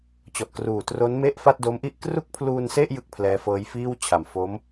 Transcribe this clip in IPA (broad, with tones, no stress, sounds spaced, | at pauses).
t͡ɕ ɔ˨˩ ʔ k r uː˨˩ t r o˦˥ n m e˥˩ ʔ f a˥˩ t̚ d o˦˥ m ʔ i˥˩ ʔ k r u˥˩ k̚ pʰ l uː˧ n s e˥˩ ʔ j ɯ˥˩ k̚ pʰ l ɛː˦˥ f ɤː˦˥ j f iː˥˩ w t͡ɕʰ a˨˩ m f o˦˥ m